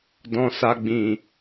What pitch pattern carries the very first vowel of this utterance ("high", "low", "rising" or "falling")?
low